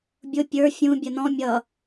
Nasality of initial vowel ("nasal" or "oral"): oral